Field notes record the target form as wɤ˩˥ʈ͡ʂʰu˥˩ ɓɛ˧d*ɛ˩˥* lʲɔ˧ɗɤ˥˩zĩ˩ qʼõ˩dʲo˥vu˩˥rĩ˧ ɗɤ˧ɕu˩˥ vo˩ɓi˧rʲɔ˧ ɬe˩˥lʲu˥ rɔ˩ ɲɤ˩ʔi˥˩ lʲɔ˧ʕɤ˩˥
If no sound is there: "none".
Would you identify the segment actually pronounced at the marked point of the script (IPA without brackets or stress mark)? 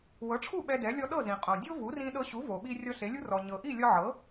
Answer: ɛ˩˥